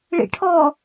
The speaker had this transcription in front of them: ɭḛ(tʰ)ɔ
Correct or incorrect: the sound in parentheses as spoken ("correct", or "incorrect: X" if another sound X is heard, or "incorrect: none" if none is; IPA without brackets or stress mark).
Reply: incorrect: ʈʰ